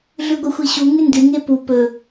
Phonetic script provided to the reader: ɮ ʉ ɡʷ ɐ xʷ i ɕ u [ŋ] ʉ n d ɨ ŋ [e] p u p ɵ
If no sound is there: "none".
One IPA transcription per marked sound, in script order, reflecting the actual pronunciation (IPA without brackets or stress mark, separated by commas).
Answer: ŋ, e